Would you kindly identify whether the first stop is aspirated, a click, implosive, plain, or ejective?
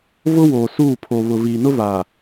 aspirated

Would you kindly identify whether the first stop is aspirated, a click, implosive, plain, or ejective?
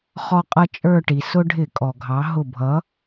ejective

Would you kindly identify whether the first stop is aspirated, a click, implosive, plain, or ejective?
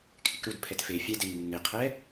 aspirated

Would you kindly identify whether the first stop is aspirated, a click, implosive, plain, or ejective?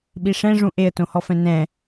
implosive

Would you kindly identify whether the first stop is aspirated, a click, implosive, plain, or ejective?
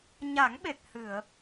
implosive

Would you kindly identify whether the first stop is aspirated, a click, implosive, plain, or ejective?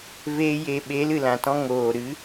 implosive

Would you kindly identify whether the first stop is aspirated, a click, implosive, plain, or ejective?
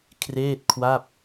aspirated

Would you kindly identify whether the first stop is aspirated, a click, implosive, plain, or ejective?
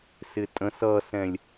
ejective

